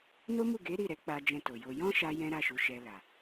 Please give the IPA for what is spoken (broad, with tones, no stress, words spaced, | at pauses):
no˦mu˦˨ ɡe˨˦ ɾi˦˨ɾɛ˨˦k͡pa˧ d͡ʒɛ̃˧to˨jo˧ jɔ̃˦ʃa˧ jɛ̃˦ɾa˦˨ʃu˨˦ʃɛ˧ la˨